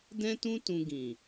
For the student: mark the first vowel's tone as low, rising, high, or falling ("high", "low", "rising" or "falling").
high